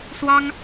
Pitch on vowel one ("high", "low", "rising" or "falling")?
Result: high